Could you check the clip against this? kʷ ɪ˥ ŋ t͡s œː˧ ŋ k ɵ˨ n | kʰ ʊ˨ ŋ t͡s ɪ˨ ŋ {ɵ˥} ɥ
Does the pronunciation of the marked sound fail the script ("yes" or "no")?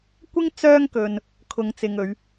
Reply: yes